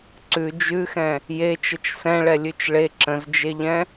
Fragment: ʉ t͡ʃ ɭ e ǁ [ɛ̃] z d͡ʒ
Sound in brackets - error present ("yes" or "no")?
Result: yes